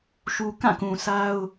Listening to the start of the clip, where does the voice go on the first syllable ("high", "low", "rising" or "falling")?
low